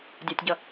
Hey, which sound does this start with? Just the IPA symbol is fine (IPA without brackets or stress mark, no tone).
dʲ